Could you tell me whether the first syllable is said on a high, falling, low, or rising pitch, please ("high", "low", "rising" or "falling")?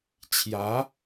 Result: rising